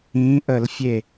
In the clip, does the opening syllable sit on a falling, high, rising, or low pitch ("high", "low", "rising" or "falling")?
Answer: rising